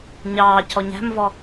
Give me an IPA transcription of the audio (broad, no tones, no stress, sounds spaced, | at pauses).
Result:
ɲ ɑː c ɔ ɲ æ̤ m v ɔ